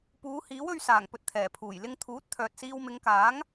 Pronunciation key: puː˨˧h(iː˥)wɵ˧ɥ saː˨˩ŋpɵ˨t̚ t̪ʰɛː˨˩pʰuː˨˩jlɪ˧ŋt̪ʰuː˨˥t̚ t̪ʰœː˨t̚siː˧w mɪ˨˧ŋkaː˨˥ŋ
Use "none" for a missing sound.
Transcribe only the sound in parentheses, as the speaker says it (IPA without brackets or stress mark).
iː˨˥